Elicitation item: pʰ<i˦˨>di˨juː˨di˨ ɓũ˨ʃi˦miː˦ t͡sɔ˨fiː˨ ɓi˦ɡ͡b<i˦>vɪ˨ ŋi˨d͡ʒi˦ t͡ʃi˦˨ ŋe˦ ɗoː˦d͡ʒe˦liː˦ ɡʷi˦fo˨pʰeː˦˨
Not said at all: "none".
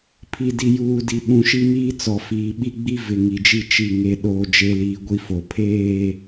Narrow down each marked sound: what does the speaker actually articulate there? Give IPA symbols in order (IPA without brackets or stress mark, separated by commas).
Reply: i˨, i˦